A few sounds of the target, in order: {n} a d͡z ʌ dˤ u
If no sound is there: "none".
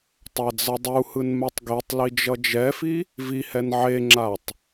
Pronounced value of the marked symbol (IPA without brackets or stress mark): tˤ